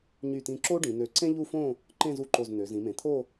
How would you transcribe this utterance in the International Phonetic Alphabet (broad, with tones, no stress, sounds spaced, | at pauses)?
ɲ y˧˩ t ĩ˧˩ ǁ o˥ ɖ ĩ˩˧ n ø˧˩ ǀ ẽ˥ ʎ u˥˧ f õ˥˧ | ǃ ẽ˥˧ z u˧ ǃ o˧˩ z n̪ ø˩˧ z ĩ˩˧ m ẽ˩˧ t̪ʰ o˥˧